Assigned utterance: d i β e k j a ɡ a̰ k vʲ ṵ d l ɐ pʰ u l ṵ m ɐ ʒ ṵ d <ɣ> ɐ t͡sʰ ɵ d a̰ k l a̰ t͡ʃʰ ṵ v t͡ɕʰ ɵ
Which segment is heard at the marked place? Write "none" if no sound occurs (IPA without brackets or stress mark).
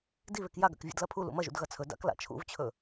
ɣ